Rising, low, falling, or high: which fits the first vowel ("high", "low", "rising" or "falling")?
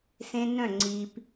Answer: high